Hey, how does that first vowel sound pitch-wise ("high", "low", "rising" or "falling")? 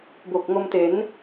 low